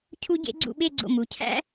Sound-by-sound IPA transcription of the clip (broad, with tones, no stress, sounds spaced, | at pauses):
cʰ u˥ ɟ ḛ˥ ɡ͡ǀ ṵ˥˧ ɓ e˥˧ ɡ͡ǀ o̰˧˩ m u˩˧ cʰ æ̰˥